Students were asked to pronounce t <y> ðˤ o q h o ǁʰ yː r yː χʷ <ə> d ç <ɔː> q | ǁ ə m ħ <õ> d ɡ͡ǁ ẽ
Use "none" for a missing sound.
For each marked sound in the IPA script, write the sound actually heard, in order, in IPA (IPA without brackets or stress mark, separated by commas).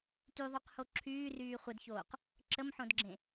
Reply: y, ə, oː, õ